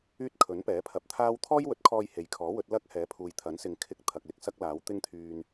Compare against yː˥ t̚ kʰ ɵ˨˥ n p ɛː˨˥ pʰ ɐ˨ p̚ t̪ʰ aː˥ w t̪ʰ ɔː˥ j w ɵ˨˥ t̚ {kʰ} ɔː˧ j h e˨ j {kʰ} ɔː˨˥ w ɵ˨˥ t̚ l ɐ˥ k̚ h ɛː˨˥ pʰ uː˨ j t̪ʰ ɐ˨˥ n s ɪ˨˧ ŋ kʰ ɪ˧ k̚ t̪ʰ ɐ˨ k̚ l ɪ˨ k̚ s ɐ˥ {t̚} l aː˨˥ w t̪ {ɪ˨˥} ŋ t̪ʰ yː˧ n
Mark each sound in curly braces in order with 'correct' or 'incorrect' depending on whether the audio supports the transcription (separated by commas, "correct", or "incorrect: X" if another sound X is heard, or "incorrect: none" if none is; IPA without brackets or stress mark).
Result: correct, correct, incorrect: k̚, incorrect: ɪ˥